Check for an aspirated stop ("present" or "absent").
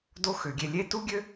absent